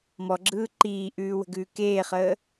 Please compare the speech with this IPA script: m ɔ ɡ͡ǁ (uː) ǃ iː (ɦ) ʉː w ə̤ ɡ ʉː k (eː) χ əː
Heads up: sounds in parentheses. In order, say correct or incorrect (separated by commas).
incorrect, incorrect, correct